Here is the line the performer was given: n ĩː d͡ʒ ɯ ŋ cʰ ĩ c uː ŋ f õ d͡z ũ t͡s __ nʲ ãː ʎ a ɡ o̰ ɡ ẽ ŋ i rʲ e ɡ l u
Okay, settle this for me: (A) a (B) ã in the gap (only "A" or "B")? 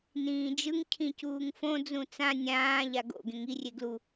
B